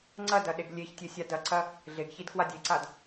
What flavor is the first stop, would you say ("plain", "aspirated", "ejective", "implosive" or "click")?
click